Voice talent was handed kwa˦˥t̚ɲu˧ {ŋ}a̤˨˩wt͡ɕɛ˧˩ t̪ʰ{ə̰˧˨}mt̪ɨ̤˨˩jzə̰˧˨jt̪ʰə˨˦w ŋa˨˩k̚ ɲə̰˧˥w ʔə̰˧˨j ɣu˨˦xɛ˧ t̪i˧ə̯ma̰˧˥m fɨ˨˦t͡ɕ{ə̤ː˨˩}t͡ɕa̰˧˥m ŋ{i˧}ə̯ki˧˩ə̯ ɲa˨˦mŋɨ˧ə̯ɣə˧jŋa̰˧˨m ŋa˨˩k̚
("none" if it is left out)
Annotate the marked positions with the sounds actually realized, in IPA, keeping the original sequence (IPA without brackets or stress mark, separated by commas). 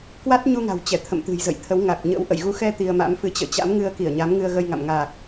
ŋ, ə̰˧˨, ə̰ː˧˨, ɨ˧